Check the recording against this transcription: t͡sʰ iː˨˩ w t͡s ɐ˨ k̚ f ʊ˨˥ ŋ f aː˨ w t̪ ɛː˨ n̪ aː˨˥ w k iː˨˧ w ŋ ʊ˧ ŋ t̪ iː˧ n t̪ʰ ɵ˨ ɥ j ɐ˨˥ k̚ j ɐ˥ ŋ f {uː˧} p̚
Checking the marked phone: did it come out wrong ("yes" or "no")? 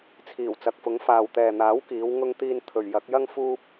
no